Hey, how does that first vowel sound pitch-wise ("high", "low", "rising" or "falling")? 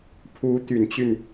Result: rising